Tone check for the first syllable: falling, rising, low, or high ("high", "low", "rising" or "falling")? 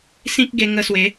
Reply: high